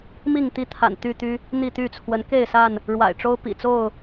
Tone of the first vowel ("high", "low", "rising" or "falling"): falling